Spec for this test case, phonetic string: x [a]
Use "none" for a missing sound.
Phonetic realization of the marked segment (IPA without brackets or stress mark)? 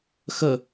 ə